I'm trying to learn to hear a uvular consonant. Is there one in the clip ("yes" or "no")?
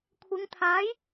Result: no